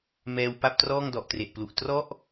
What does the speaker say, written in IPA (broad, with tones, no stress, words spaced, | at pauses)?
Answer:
mɛː˧wpa˥˩p̚trɔː˥˩ŋ dɔ˨˩ʔtre˨˩ʔplu˨˩ʔ trɔ˥˩ʔ